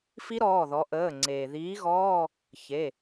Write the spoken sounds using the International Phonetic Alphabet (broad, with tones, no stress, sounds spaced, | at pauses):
f i˦˥ ɾ ɔː˩˧˩ ð ɔ˩˧ ʔ əː˩˧˩ ŋ͡ǀ eː˩ ð iː˨˥ ɣ ɔː˧˥˧ | ç e˩˧˩